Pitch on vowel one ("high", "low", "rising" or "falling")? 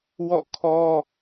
falling